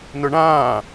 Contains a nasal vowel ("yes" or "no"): yes